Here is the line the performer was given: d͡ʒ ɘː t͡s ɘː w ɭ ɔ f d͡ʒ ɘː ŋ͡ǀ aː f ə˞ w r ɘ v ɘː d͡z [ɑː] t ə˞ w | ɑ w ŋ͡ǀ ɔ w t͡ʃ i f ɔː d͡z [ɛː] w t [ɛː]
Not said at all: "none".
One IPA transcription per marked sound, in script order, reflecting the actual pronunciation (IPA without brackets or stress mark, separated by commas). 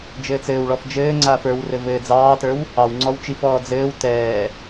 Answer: ɑː, ɘː, ɛː